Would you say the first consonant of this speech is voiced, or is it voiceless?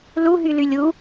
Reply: voiced